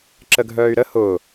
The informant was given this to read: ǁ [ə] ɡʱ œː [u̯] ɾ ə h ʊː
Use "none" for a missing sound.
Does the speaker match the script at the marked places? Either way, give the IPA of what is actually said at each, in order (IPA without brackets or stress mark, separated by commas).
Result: ə, y̯